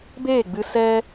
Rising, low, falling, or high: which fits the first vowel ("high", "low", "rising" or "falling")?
falling